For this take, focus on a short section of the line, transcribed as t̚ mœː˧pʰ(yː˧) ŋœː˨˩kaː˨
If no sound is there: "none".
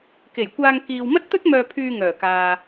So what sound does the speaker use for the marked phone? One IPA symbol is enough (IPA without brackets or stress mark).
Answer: yː˧